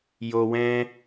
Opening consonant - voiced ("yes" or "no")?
yes